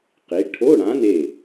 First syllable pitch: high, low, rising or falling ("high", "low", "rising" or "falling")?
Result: rising